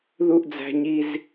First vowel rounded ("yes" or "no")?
yes